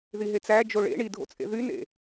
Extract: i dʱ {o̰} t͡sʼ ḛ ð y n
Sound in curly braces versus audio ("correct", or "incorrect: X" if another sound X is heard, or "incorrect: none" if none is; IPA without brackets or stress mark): correct